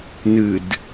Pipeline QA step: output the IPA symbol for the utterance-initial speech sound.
n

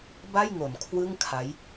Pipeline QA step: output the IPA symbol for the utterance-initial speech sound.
b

